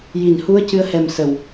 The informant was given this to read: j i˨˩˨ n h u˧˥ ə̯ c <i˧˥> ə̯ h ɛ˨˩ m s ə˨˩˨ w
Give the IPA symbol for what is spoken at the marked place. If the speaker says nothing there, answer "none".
ɨ˧˥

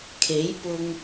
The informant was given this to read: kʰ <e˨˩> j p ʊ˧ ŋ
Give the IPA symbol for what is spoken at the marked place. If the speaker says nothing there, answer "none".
e˨˥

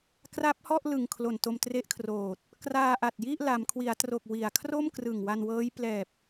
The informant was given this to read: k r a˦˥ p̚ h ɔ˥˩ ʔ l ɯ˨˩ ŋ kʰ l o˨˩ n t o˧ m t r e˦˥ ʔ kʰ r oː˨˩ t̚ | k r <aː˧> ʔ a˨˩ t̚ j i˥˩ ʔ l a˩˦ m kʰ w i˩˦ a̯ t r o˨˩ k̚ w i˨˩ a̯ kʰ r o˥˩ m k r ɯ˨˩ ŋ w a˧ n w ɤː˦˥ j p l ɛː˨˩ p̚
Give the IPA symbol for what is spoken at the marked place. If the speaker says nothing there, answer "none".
aː˧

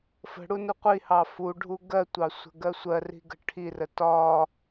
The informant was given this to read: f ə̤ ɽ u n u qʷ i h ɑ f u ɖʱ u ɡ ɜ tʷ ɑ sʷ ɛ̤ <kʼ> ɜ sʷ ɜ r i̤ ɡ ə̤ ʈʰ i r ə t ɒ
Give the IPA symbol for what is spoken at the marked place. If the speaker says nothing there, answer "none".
ɡ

